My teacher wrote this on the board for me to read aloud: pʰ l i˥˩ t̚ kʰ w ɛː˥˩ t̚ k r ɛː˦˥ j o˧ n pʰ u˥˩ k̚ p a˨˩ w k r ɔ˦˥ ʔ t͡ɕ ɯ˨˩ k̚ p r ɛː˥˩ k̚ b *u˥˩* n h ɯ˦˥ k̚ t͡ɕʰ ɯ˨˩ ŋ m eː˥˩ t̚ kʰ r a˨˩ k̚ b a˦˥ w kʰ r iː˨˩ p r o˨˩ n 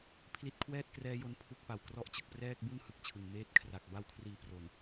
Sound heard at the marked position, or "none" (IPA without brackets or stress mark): u˥˩